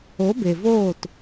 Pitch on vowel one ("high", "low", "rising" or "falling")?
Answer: rising